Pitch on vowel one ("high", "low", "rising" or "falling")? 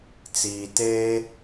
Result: low